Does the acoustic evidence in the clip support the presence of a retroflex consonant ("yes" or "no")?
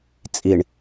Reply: yes